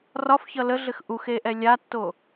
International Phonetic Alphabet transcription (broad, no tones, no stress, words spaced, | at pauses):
rɒfçʌ ləɮɘx ʔuxeʔɛ lʲatːo